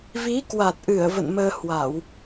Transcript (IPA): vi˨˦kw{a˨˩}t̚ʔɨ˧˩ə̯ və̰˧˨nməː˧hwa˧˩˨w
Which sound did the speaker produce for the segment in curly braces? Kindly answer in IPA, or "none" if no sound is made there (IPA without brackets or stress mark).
a˨˩